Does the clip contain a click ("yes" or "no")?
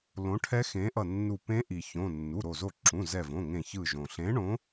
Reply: yes